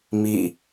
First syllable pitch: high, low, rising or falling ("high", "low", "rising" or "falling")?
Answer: falling